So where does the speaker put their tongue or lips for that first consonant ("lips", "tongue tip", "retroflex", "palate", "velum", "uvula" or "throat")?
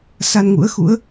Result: tongue tip